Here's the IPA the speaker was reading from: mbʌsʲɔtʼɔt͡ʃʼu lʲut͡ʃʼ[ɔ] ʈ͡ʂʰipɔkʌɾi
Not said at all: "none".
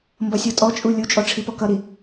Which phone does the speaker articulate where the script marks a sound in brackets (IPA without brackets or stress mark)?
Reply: ɔ